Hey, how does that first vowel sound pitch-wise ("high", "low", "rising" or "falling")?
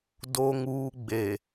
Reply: low